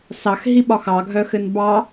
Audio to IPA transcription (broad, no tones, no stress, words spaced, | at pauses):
sɑx ɦiɓɒxɑ ɡʱœxɘnbɑ